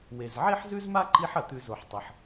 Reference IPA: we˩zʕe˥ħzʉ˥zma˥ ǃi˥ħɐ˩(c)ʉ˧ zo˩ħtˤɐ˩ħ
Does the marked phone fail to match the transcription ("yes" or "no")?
yes